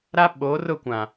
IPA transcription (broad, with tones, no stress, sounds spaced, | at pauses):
ɾ a˦ ɓ oː˨˦ r ʊ˦˨ kʷ ã˨